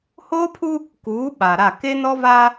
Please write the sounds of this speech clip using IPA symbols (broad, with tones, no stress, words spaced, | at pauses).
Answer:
hoː˦pʰu˦ | kuː˨˦ ɓa˨ɾa˦˨ ke˦nɔ˦va˦